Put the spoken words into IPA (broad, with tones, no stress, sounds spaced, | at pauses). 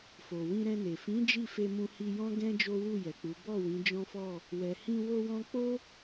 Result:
f o˨ w ĩ˧ ɾ ɛ̃˧ n e˨ f ĩ˨˦ d͡ʒ i˦˨ f e˧ m ũ˧ h i˧ j ɔ̃˦ ɡ ɛ̃˦ d͡ʒ o˦ w u˦˨ j ɛ˨ k͡p u˨˦ b ɔ˦˨ w ĩ˨˦ d͡ʒ ɔ̃˦ f ɔ˦˨ | w ɛ˨ h ĩ˧ w o˧ w ɔ̃˧ k͡p o˦